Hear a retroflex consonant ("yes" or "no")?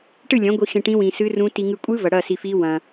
yes